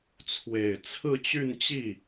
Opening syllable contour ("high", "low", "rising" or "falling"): low